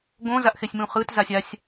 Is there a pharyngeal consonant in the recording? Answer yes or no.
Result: no